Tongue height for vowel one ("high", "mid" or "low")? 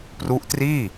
high